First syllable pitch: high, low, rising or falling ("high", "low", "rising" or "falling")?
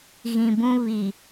low